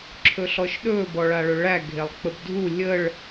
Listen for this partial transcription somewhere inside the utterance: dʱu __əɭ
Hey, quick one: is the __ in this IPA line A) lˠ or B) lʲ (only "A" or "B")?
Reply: B